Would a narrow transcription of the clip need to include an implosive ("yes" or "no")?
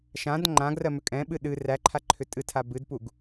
yes